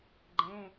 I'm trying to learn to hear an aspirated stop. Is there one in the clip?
no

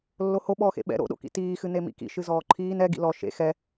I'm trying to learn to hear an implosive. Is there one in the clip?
yes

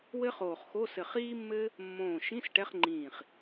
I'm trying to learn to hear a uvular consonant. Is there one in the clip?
yes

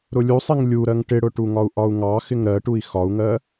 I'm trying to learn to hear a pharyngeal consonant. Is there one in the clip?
no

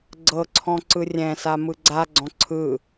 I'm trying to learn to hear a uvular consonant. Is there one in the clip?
no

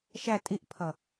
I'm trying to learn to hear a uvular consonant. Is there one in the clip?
no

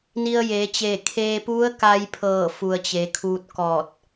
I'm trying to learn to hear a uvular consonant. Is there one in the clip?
no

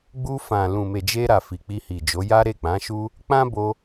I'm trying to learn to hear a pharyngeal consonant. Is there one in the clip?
no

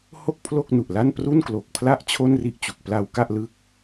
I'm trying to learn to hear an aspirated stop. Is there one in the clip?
yes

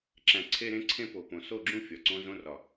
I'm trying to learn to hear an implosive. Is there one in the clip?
no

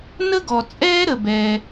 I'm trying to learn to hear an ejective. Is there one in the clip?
yes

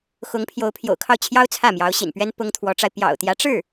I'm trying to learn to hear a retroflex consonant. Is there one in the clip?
yes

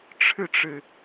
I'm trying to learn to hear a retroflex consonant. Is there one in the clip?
yes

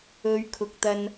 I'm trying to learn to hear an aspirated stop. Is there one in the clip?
yes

